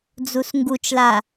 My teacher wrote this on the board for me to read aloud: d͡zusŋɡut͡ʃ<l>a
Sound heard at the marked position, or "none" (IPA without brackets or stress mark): l